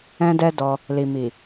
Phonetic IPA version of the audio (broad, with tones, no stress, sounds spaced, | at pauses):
ɛ̃˦ d ɛ˦ d ɔ˧ | l i˨ m i˨